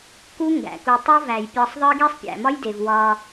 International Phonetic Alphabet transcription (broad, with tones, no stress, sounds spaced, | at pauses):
k u˦ ŋ ɡ æ̰˨ k u˧ tˤ o˦ v æ˨ j pʲ ɒ˧ sˤ ðˤ i˦ ɡ e˦ sˤ pʲ æ̰˨ m ɒ˦ j d e˨ v w ɒ˧